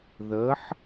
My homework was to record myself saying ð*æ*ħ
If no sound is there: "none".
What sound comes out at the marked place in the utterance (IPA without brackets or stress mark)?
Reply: ə